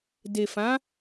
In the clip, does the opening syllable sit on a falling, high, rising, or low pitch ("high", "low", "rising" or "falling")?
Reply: low